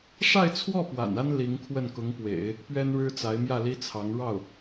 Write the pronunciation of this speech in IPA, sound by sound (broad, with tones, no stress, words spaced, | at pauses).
ʂa˥˧ɪ̯t͡sʰwɔ˥˩ pwa̰˨˩na˥n li˧˥ŋkʰwə˥˩n kʊ˧˥ŋpwḛ˨˩˦ɪ̯ | pɥɛ˥nɻɻ̩˥t͡sa˧˥ɪ̯mjä˥˩ li˥t͡sʰɑ˧˥ŋ ɻɑ˥˩ʊ̯